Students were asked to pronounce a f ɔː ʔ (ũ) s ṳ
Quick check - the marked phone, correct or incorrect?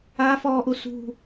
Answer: incorrect